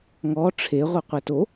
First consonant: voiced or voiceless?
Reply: voiced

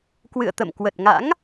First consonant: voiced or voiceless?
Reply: voiceless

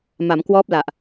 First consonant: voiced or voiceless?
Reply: voiced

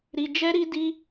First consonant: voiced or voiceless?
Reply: voiced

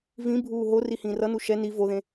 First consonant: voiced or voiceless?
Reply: voiced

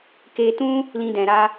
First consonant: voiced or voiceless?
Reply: voiceless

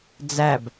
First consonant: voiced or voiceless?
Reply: voiced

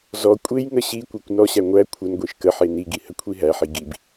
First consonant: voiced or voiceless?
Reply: voiced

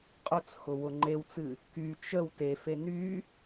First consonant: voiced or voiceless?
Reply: voiceless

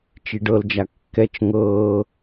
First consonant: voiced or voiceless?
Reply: voiceless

